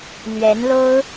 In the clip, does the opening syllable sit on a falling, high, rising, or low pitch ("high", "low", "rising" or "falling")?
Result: rising